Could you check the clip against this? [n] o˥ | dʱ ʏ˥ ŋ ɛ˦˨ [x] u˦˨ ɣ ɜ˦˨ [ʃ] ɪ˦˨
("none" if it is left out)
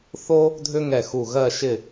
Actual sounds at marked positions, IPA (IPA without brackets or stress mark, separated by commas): θ, x, ʃ